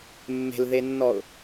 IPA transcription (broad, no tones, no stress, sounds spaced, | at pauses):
mː e̤ l ð e nː ɔ ʊ̯